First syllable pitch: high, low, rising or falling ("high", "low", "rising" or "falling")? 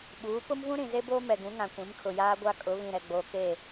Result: rising